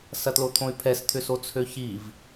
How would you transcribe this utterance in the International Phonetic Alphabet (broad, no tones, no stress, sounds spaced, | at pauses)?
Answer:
s ɐ t l o t̪ʰ õ y̯ pʰ ɛ s t̪ʰ ʏ s o t͡sʰ ø ç i v